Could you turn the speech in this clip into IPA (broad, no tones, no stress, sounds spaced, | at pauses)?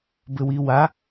b ɘ w i w a